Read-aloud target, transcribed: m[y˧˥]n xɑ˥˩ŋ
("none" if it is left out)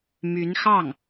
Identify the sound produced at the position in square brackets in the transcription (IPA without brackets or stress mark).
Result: y˧˥